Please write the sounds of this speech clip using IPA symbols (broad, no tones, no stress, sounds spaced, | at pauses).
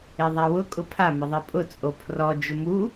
e ðˤ a w ʊ kʼ ʊ pʰ a m ɪ ðˤ i pʼ ʊ t͡sʼ o pʰ r ɔ d͡ʒ ʊ m u